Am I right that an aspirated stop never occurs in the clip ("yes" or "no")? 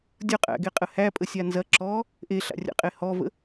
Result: yes